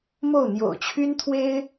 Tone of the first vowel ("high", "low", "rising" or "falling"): falling